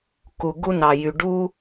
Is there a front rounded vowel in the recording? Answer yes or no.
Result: yes